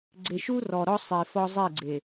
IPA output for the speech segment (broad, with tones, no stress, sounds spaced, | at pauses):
ɡ͡ǀ e˨ ʃ u˦ r ɔ˨ ɾ ɔ˦ sˤ e˨ f ɔ˦ zˤ e˦˨ ɡ͡ǀ e˨